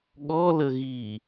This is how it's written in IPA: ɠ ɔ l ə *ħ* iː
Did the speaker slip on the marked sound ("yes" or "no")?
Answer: yes